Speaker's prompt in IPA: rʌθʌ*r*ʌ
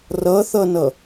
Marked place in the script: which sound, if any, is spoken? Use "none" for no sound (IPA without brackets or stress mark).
n